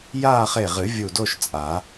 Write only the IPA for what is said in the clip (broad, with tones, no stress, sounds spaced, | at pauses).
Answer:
j aː˥˧ χ e˧˩ ʁ ɨ˨˩˦ vʲ u˧˩ d o˥˧ ʃ t͡sʼ a˨˩˦